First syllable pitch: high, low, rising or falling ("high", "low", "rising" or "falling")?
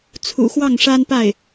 low